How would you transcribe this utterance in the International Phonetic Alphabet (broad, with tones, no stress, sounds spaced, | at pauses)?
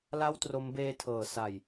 l a˥˩ w t r o˦˥ m b eː˧ tʰ ɤː˩˦ s a˨˩ j